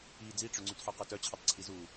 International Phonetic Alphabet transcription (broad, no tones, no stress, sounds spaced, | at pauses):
i d͡z i ʈ͡ʂ ø ŋ͡ǀ y t ħ ø q œ t œ t͡ɕʰ i tˤ ǀʰ i z u